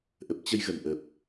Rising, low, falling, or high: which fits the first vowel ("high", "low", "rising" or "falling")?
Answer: low